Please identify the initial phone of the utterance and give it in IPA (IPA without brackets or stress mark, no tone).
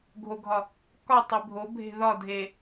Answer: ɡʱ